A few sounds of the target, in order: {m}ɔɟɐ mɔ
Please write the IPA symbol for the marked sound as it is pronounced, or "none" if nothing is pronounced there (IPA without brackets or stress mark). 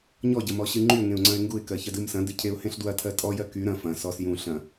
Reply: ɲ